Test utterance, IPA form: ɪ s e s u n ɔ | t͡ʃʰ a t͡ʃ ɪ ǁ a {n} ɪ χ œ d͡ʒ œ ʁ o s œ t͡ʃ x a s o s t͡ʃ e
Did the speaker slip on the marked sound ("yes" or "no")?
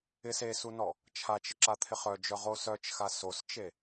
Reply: yes